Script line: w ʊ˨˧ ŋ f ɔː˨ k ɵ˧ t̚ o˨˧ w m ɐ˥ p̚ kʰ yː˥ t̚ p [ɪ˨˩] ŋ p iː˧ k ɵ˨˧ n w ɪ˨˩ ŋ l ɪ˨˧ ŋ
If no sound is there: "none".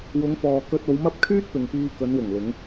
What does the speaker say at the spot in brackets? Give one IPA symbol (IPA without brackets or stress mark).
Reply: ɪ˨